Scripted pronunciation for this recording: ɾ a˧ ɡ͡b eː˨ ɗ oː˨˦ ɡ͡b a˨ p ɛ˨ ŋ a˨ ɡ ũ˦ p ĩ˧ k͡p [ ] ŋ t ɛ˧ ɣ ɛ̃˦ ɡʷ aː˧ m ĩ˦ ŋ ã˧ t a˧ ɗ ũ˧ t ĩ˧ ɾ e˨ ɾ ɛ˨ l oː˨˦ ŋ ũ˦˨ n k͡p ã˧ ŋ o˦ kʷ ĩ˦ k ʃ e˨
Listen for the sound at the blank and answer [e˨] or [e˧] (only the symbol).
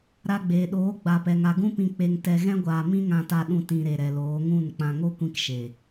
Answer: e˧